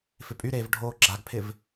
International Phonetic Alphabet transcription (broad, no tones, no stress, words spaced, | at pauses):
fɪpʼyɾeːv ɖʱoːɡ͡ǁaɡpʰɪv